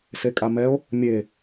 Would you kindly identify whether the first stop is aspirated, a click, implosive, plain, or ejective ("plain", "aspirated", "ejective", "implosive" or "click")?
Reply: ejective